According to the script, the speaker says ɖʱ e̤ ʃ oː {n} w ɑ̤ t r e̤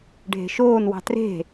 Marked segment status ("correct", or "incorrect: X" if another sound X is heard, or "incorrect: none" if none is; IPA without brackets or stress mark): correct